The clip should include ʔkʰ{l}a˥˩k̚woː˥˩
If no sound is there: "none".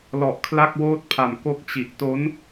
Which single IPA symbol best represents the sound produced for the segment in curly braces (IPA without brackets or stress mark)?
l